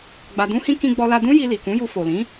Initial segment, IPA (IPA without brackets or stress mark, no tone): ɡ͡b